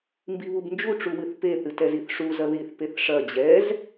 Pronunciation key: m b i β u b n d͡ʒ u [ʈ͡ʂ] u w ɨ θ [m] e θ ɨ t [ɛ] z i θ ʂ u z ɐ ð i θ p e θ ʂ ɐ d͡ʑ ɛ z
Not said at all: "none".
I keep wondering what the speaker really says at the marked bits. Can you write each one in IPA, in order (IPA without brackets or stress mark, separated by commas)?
ʈ͡ʂ, p, ɛ